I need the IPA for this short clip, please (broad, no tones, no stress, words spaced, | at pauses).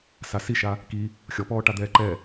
sasiʃa | ki | xʲɔpɔːʈa d̪ɛːǃɛ